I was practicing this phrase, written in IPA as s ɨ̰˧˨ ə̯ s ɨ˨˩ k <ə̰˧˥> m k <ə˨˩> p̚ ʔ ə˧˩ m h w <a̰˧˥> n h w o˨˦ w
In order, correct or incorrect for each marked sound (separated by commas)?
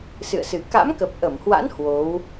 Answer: incorrect, correct, correct